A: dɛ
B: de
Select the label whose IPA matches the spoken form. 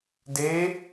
B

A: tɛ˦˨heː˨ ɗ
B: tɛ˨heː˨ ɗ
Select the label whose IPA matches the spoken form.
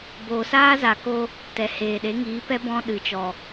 B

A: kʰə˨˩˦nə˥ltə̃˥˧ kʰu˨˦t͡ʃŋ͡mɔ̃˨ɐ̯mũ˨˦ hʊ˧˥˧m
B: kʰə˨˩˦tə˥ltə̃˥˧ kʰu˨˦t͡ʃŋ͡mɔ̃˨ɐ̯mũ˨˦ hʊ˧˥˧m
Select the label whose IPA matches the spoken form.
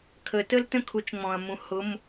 B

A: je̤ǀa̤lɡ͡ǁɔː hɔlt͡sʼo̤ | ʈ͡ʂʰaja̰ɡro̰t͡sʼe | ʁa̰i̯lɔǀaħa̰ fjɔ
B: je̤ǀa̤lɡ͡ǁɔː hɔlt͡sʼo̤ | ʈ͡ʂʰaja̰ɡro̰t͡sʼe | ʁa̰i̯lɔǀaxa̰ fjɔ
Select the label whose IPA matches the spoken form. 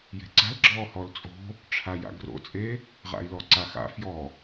B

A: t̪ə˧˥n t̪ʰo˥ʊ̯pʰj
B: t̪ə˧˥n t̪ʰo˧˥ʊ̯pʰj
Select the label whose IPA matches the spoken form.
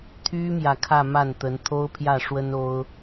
A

